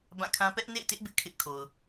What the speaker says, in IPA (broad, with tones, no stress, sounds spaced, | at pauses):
b ã˦˨ kʰ ã˦ p ɛ˦ ʔ n ḛ˦˨ ɪ̯ t ɪ˦ ʔ b ɪ˦ ʔ kʰ ɪ˦ ʔ kʰ o˨ ʊ̯